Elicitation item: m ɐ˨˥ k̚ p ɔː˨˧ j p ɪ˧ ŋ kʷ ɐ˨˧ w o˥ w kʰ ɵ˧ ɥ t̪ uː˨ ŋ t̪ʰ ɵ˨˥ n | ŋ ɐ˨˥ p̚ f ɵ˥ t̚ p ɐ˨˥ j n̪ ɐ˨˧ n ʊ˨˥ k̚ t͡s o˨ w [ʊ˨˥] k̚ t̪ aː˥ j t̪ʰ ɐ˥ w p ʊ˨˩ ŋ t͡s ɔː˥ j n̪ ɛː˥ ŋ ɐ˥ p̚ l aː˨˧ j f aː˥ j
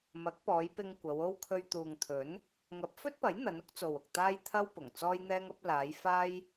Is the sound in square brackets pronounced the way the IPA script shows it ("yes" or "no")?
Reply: no